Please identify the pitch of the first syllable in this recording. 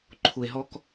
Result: low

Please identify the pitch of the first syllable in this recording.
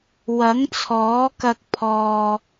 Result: rising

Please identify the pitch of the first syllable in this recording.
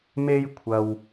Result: high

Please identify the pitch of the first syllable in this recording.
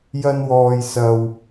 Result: high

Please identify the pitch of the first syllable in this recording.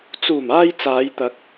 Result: low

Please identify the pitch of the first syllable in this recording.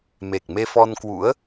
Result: low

